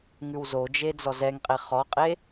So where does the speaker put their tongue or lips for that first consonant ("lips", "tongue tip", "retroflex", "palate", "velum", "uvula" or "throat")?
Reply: velum